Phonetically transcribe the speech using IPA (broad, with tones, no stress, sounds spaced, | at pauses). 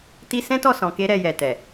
t i˦ s ɛ̃˦ t ɔ˦˨ s ɔ̃˨ k e˧ ɾ ɛ˧ j ɛ˨ t ɛ˨